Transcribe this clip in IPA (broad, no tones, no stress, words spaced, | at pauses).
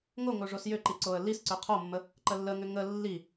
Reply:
ŋoŋo ʐosjʏǃi ǀoə̯lisǀʏ qʰomːə | ǃəlːəŋʏ ŋə lːi